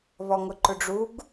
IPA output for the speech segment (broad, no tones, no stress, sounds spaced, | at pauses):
β ɔ ŋ ʊ ǃ ʊ ɖ͡ʐ u ɡ